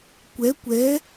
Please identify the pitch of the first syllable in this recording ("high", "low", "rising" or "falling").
rising